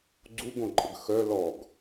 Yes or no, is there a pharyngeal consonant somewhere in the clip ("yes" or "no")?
no